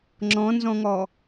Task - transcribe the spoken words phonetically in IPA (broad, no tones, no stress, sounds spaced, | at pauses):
ŋ͡ǁ ɔ̃ n z ɔ̃ ŋ ɔ